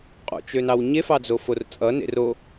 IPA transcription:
qʼo̰t͡ʃønɑw ɲefɑd͡zofor t͡sʼʌnḛ ro

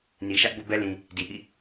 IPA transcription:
ni˨ʃä˦ʔbo̰˦˨bɛ˦ lĩ˨ | di˨ʔḭ˦˨

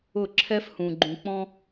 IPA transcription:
ʊ˦˨ ǁʰɛ˦fhũ˨ ɡ͡ǃũ˨k͡pɔ̃˦

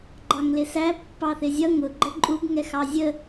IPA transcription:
ɡ͡ǃɑŋlɪsæ pːɑθɪzʲʌ ŋʊ ɡ͡ǃəǃʼub ŋɛxɑzʲə

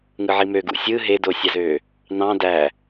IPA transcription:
ŋɯʕimøɡṵ sʲɯ ɦedosʲɑzø | nɑ̃ dæ

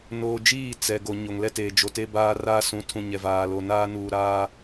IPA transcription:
noː˨d͡ʒiː˦˨ t͡sɛ˨ ɡo˨ ɲo˨ŋlɛ˦teː˨ d͡ʒo˨te˦baː˦raː˦ sũ˨˦tʰũ˨ ɲɛ˨vaː˨lo˨ naː˦nuː˨ɾaː˦

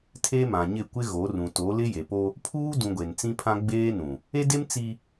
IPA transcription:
tʰe˦mã˨ɲɪ˦˨ kʷɪ˦ɣo˨˦rũ˨ to˨˦lɪ˦ je˨po˦ | pʰuː˦dũ˨ ɡʷe˨n t͡sĩ˦pʰã˦ ɡ͡beː˦nũ˨ | e˦de˦m t͡si˦

